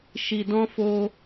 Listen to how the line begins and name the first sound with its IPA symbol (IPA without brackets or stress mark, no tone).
ʃ